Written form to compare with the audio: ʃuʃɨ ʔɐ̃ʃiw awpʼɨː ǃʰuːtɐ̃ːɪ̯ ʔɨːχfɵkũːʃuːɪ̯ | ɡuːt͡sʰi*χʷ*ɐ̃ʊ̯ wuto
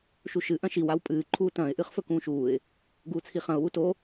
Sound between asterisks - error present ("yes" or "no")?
yes